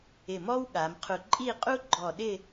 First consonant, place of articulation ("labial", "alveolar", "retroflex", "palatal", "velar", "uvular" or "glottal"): labial